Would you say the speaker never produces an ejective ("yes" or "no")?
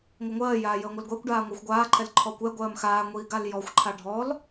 yes